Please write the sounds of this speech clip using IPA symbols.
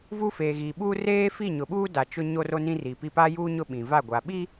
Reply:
vu˦feː˨ɣi˨ɓuː˦ reː˦fi˦˨ ɲʊ˨ɓuː˦ da˨ t͡ʃʊ˦ ɲo˦ro˦ nĩ˦ri˨pi˦ pa˦juː˦ ɲʊ˦ɓĩ˨va˦˨ɡʷa˨ ɓi˦

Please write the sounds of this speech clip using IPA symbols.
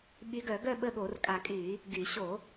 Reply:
ɓy˨˦ɡœ˧˩˧ɡœ˦˨ ɓə˦˨ɠo˧˩˧rkʼa˧˩˧kʼy˧˩˧ | ɡy˧˩˧ ɕo˧˩˧

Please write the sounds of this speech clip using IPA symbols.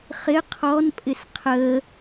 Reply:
χɪ qʰɔnpʼɪs qʰə

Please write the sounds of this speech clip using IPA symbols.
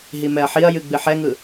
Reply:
ɦimɛɐ̯ħiɐ̯jɨ ɡ͡bɨħɛŋɯ

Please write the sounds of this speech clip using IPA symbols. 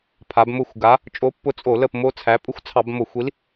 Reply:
pʰa˩˧bmʊ˦˨xʷɡa˨˥ | t͡ʃʼo˨˥pːʊ˨˥ t͡sʼo˧˩˧ lə˦˨pmo˦t͡sʰæ˨˥ pʼʊ˦xʷt͡sʰɑ˧˩˧bmo˧˩˧xʷi˨˥l

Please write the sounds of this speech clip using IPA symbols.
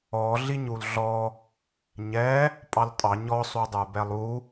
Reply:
ɔ ɮiɲulɮɔ | ɲɛ | pʼɑltʼɑ ɲɔ sˤudˤə˞bɛlˠu

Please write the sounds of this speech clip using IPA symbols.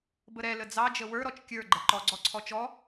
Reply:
bəɾɛ ləd͡zɑ d͡ʒəwə˞ ɾɔt͡ʃkʲə˞ ɡ͡ǃɛǃɔ ɡ͡ǀɔǀʰɔt͡ʃɔ

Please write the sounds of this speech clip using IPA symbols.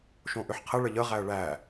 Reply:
ʃõʔʏħqʰə ɭəʎəʁæə̯ ɭæ

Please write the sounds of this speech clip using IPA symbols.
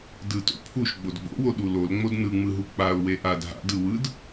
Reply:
dɯto̰ pʰuʃ ɡ͡bodɡ͡bo̰wo ɗulol ŋ͡modnɯŋ͡mɯɦu k͡paʊ̯ weʔad ɦa̰d ɯwɯd

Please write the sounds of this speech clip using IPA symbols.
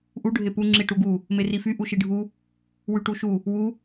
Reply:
ʔu ɖʱepu ŋ͡ǁiʈuɡu | merify ʔuʃiɖʱu | wyʈuʃu | wu

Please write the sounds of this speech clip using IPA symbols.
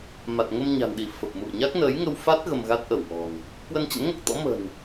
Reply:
ma˨˩t̚ŋə˧mɲa̤˨˩nɗi˧˩ fə˨˩p̚mṵ˧˨ə̯ɲa˦˥k̚ nə˨˦jŋə˧wfa˦˥t̚ ɣə˧mɣa˦˥t̚ʔə˧˩wŋɔ̤˨˩n | kwə˧nt͡ɕə̰˧˥nŋo˦˥k̚t̪ɔ̰˧˥ mə̤˨˩n

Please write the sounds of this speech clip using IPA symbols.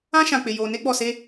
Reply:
ã˦ʃã˨ k͡pɪ˨jo˨ ne˦ɡ͡bɔ˨se˦

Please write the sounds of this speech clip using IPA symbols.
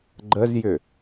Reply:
ɡ͡ǃəzjʏ

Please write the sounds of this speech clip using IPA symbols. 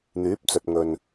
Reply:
n̪yː˨˥p̚t͡sɵ˨t̚ŋɵ˨n

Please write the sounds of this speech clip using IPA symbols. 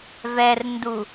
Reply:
vɛrndu

